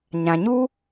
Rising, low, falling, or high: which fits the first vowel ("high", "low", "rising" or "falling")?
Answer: low